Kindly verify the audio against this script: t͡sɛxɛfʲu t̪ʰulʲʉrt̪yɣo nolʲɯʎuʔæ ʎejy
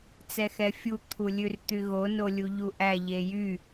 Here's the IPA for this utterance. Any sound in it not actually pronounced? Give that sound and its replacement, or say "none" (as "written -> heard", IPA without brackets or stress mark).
ɯ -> u